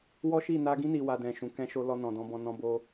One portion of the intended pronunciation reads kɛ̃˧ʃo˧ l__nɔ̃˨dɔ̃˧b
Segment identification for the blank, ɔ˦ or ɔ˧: ɔ˧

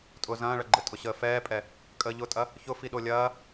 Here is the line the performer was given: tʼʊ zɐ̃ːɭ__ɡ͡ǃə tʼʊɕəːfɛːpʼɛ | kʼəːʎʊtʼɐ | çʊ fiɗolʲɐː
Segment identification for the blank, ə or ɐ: ɐ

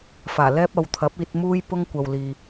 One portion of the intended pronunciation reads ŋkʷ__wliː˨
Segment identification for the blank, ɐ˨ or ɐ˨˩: ɐ˨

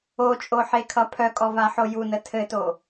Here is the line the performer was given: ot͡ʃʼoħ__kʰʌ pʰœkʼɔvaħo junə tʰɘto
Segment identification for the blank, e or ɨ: e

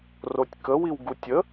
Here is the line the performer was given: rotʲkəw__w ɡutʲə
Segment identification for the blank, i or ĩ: i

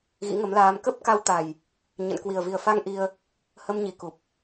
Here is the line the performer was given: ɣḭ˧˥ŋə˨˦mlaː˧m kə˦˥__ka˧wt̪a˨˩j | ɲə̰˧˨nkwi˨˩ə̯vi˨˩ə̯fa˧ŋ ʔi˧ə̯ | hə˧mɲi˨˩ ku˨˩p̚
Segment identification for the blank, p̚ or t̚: p̚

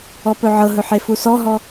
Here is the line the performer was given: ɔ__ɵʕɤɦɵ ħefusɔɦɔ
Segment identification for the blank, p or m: p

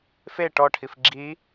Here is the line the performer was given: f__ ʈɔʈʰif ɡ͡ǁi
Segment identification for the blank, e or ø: e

